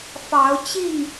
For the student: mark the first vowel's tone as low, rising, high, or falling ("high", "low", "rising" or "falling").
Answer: rising